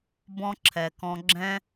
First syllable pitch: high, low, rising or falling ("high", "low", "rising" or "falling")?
high